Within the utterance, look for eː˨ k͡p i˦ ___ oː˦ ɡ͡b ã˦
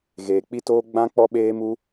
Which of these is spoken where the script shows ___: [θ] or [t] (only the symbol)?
t